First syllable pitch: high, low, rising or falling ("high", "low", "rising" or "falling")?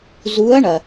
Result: rising